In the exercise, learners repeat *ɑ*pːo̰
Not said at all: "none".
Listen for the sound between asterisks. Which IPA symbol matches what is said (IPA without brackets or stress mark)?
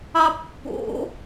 ɑ